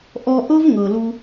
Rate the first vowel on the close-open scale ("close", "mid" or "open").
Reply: mid